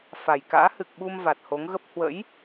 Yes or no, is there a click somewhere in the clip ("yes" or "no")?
no